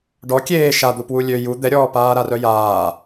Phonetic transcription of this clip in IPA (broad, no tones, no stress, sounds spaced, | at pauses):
ɖ ɔ kʲ eː ʃ a d̪ u p w u lʲ ø j u d̪ ɛ ɾʲ ɔː p aː ɾ a r œ j aː